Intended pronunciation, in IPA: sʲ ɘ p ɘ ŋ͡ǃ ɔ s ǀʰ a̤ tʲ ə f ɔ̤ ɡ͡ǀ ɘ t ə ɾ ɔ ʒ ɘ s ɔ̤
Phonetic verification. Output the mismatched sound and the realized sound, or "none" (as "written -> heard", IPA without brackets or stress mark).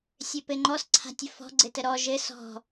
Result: none